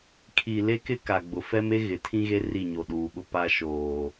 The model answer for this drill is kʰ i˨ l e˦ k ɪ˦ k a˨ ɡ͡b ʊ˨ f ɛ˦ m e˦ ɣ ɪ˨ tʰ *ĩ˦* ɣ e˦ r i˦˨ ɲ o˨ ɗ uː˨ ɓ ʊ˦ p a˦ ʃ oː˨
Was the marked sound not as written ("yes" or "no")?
no